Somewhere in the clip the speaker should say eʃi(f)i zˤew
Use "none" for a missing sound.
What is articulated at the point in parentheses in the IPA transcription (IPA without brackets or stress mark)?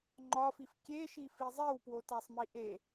f